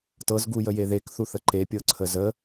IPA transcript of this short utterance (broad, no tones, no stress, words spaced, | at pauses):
tɤzɡujəje ðekθu θəǃepʲɤ ǀʰəzə